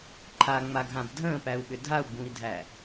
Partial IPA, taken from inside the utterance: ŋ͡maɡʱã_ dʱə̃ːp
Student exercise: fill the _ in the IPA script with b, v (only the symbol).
b